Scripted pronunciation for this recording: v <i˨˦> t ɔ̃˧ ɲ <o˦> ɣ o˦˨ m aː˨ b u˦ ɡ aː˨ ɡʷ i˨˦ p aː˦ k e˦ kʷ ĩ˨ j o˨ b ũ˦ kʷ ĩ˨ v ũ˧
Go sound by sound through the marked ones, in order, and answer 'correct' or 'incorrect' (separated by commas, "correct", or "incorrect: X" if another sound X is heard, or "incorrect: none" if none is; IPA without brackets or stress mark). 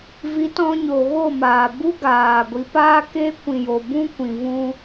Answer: correct, incorrect: o˨